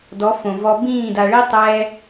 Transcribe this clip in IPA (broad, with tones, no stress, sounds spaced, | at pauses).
d ɔ˨˦ f õ˨ v ɔ˧ b ĩː˦˨ d a˨ ɭ i˦ tˤ ɛː˦